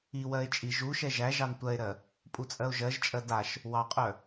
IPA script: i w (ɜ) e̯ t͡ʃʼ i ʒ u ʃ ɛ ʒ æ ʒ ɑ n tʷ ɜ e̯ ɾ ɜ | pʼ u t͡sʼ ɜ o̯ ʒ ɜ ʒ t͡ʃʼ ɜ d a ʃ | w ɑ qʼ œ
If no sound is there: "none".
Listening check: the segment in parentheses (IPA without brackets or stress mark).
ɜ